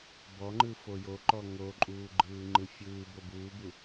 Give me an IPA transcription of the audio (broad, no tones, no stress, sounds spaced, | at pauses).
b ɔ ŋ͡ǃ ɯ f o j o ǃ ɔ ŋ o ǃʼ uː ɡ͡ǃ ɯː ŋ͡ǃ ɯ fʲ ɯː b o b uː b u